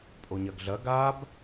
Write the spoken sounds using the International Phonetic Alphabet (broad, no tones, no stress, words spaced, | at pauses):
pʼoɲɐɡɮɐ ɡab